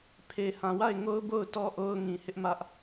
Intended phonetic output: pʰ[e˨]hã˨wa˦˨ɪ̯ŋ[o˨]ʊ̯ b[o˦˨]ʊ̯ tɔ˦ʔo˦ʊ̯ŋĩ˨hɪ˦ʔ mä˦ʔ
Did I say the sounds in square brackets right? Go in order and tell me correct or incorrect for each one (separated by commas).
correct, incorrect, correct